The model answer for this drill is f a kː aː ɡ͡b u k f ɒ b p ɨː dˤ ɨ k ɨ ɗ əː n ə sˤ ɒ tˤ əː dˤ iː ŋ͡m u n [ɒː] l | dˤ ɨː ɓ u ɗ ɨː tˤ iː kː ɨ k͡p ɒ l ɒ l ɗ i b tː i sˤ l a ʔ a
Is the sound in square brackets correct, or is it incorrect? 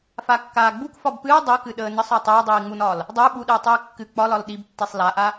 correct